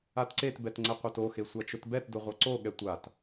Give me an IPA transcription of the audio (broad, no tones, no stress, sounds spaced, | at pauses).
a t ǀ e t b ɛ t ŋ͡ǀ ɛ qʷ a t o x e sʷ a t͡ʃ ʊ t b ɛ t d ʊ ʁʷ ɤ ǀ o ɠ ɛ tʷ a t